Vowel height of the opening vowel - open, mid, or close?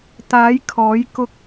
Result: open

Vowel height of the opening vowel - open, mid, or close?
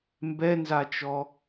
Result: mid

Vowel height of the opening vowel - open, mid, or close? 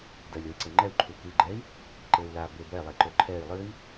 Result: open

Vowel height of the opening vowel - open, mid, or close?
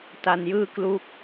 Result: open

